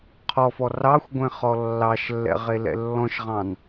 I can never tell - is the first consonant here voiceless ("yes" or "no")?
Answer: yes